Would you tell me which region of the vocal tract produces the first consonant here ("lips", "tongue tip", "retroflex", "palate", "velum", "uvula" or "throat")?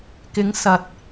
velum